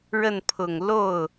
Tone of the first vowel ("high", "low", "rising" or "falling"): falling